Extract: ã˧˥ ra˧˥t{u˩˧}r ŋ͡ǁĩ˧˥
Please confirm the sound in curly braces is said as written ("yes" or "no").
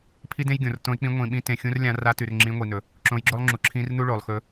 no